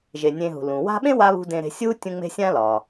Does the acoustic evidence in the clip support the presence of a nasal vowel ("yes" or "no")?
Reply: yes